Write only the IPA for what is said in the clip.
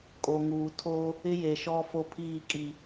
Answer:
kʼ o˨ ŋ uː˨ tʰ o˦ | ɪ˦ j e˨ ʃ ɔ˦ f o˦ pʰ iː˦˨ kʼ i˨

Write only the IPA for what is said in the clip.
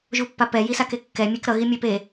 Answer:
ʒ u pː a p ɛ j i s a k e kː ɛ mʲ e k ɾ ʌ ɣ i mʲ e p e

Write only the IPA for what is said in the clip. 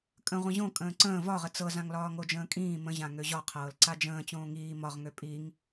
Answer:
kʼ ə̃ ʁʷ ə̃ ʑ õ kʼ ə̃ː ǀ ə̃ː v ɒ ʁ ə t͡s ɤ z ã ŋ l ɒː ŋ o d͡ʒ ə̃ː kʼ ĩː m ə̃ ʑ ã ŋ ø ʑ ɒ qʰ ɤː l ǀ a d͡ʒ ə̃ː t͡ɕ õː ŋ iː m ɒ ʁ ŋ ø pʼ i ŋ

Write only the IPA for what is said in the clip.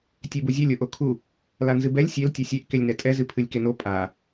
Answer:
tʲ e b u zʲ ɛ lʲ o ʔ o kʰ u | l a n z ɨ b ɛ lʲ sʲ e l tʲ ɛ sʲ e ʔ k e lʲ n ɛ tʼ ɛ z ɨ pʰ ɨ lʲ k e n o pʼ a

